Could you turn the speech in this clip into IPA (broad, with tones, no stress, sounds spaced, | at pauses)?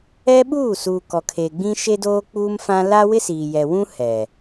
ɛ˦ ɓ uː˦˨ s uː˨ k ɔ˨ kʰ e˨ ɡ͡b ĩ˦ ʃ e˦ d oː˦ k͡p uː˦ m f ã˦ l a˦ w ɪ˦ s iː˨ j ɛ˨ w ũ˦ h ɛ˨